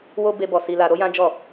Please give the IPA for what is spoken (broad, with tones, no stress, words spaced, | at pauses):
wo˧ be˧bɔ˨ si˧la˧ ɾo˦jã˦ d͡ʒɔ˦˨